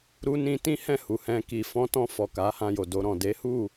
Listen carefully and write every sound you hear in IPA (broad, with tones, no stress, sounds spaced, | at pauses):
ɾ u˧ n ĩ˧ t ĩ˦ h ɛ̃˦˨ h u˨ h ɛ̃˧ k i˨ f ɔ̃˧ t ɔ̃˧ f ɔ˨ k a˨˦ h ã˧ j o˨ d o˧ ɾ ɔ̃˨ d e˨˦ h u˦˨